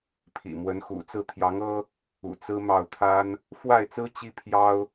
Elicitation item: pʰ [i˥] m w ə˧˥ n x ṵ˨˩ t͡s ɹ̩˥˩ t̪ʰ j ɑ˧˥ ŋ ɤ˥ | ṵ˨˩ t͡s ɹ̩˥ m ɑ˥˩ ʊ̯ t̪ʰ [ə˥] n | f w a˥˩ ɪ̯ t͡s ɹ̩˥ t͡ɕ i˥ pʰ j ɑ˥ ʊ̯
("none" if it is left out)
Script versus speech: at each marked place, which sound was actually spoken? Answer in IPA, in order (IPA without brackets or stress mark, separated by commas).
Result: ḭ˨˩, a˥